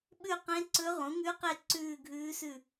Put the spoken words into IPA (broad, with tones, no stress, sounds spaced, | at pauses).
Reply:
ɓ ʉ˦˨ q ẽ˧˥ ǀ ɵ˧˥ ʁ ũ˩˥ ŋ ʉ˧˥ q e˦˨ ǀ ʉː˦˨ ɡʱ ʉː˧˥ s ʉ˦˨